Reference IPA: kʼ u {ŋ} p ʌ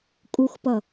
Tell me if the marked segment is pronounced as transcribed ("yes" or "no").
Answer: no